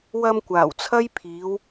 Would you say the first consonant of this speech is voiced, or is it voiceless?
voiced